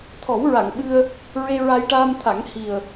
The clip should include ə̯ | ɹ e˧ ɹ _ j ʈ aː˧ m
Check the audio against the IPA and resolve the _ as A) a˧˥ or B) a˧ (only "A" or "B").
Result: B